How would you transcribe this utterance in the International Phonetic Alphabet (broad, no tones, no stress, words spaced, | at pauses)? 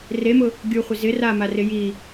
remʊ | ɡʲuχʷɪ zɪ ramarɪ ji